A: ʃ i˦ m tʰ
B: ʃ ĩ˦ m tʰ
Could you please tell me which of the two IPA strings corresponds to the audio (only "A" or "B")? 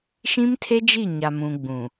B